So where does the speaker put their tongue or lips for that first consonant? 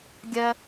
velum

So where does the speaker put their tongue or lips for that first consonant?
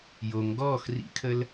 palate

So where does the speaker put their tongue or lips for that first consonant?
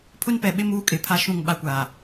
lips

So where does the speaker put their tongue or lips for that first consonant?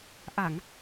throat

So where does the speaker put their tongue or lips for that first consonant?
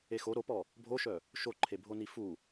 velum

